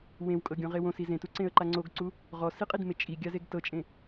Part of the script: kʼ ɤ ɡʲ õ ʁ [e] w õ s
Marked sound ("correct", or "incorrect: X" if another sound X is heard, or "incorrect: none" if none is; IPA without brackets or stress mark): correct